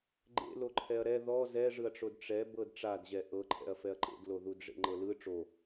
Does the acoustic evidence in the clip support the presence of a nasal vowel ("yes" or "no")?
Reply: no